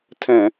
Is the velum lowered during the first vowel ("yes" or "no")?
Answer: yes